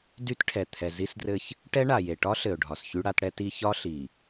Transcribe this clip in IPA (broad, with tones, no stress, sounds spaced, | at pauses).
d y˦ t ʈʰ ɛ˨ t̪ʰ ɛ˨ z i˦ s d r ɘ˦ ç | ʈ ɛ˦ ɳ a˨ j e˨ ʈ ɒ˦ ɬ ɘ˨ ʊ̯ ɖʱ ɒ˨ s ç y˦ ɽ a˦ t ɽ ɛ˦ t i˦ ç ɒ˦ ɬ i˨